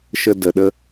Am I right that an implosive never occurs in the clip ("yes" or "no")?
no